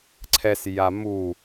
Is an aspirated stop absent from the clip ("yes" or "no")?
no